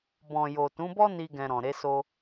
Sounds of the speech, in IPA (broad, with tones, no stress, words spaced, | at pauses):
bɔ̃˨jo˨tũ˨˦bɔ˦ ni˦ɡɛ̃˧ɾɔ̃˨ ɾe˨˦so˧